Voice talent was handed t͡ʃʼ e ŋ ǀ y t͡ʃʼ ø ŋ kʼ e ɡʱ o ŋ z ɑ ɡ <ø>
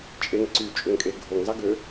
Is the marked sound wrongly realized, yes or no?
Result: no